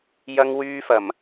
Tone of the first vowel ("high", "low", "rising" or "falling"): high